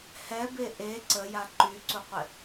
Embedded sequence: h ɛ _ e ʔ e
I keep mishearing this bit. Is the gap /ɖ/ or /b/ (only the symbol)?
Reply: b